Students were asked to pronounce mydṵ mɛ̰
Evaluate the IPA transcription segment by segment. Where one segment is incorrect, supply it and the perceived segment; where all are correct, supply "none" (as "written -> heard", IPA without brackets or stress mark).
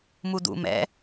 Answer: y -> u